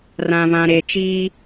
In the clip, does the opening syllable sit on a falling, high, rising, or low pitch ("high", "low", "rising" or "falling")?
low